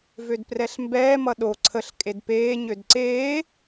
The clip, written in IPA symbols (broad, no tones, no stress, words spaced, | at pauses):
vødprɛɬmbɛː mʌɗo ǀʰəɬ kʼedpeː ɲødǀeː